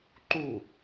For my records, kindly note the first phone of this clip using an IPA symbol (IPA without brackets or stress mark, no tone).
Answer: ǃ